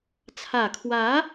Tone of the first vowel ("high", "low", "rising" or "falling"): low